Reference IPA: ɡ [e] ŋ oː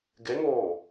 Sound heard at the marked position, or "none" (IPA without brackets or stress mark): e